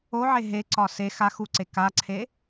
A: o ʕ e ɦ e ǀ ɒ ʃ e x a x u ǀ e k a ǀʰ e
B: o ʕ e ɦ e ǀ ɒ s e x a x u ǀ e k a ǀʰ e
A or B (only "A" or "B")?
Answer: B